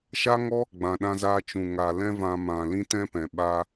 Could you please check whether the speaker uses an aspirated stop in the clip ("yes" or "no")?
no